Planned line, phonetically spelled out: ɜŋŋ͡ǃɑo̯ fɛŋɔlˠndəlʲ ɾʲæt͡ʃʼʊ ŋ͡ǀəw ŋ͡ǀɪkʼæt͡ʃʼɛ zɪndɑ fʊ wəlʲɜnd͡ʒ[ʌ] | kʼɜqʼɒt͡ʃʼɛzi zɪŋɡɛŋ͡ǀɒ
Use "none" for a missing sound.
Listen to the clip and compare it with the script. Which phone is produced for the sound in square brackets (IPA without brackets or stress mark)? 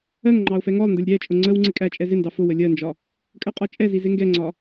ɒ